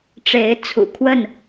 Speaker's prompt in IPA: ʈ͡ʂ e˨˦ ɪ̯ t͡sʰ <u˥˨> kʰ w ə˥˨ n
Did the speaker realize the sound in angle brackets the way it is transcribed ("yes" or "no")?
no